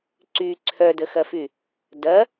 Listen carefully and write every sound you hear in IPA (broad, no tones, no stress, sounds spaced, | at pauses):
ǀ y ǀʰ œ d ə x ɐ f y | d ɐ